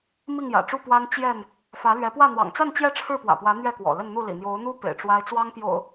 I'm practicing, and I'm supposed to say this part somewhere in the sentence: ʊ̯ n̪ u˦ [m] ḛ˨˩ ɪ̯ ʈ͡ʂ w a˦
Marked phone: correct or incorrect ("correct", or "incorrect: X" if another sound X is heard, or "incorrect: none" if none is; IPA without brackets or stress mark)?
incorrect: p